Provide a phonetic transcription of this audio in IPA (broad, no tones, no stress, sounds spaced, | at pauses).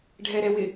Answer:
ɖʱ ɛ ɾ ɛ w ɪ